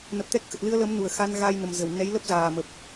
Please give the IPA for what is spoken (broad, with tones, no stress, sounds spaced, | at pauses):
n ə˨˩ p̚ t̪ ɛ˦˥ k̚ x ə˨˩ t̚ l ɨ˧ ə̯ l ə˨˦ m n u˧˩ ə̯ x a˧ n ɣ a˧ j n ə˨˩ m z ə˧˩ w n ɛ˨˦ j l ə˦˥ p̚ z aː˨˩ m ə˨˩ p̚